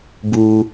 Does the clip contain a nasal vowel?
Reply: no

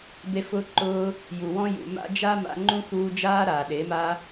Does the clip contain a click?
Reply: yes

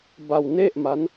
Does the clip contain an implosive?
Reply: no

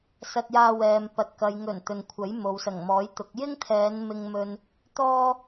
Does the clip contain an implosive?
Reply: no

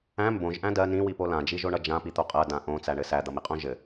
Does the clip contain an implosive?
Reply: no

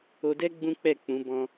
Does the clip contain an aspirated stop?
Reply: no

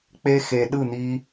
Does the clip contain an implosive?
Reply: yes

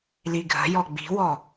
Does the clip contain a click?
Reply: no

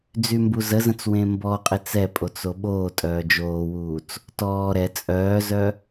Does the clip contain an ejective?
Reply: yes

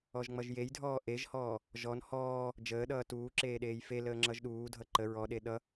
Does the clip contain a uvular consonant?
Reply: no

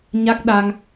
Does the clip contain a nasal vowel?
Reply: no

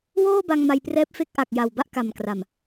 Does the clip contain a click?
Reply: no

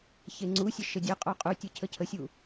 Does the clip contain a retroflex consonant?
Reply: no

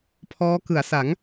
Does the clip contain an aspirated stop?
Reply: yes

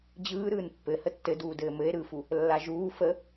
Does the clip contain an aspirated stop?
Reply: no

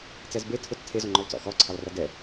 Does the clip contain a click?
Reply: yes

